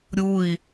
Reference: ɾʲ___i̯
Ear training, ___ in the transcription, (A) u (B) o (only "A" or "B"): A